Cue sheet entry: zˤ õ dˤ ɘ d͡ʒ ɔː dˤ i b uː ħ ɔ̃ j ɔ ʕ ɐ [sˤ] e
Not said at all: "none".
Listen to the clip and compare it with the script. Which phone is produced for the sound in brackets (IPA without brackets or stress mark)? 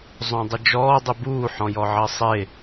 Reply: sˤ